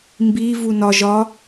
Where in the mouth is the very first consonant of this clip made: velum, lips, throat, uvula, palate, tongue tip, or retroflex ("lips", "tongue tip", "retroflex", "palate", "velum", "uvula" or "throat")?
lips